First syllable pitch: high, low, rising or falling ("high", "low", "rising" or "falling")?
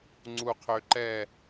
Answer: low